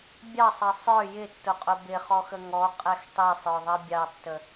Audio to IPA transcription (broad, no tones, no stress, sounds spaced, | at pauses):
bʲ ɑ sˤ ʌ sˤ ə˞ j ɪ tː ʊ qʼ ʊ b ɪ χ ɔ x ə ŋ ɔ qʼ ɛ x tˤ i sˤ ə˞ ðˤ ʌ bʲ ɑ tː ə